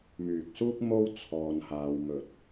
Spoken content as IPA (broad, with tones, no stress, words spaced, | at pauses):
myː˨k̚suː˥k̚ mo˥w t͡sʰɔː˧nhaː˧w mɵ˨t̚